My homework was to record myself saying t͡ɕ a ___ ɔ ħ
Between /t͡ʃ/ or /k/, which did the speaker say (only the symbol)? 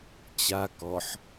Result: k